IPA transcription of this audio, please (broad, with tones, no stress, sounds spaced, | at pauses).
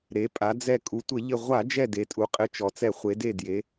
ɾ e˩˧ pʼ a˩˧ d͡z ɛ˧˩ kʼ u˩˧ tʷ ɘ˧˩˧ ʎ ɘ˧˩ ʁʷ a˧˩˧ d͡ʒ ɛ˧˩ d e˩˧ tʼ u˩˧ qʼ ɘ˧˩ t͡ʃ ɔ˩ t͡s ɛ˧˩˧ χʷ e˩˧ d e˧˩ d j e˩˧